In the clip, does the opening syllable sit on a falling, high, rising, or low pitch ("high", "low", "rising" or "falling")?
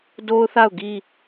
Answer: high